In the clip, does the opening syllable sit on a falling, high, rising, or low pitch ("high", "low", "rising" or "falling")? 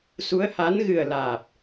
rising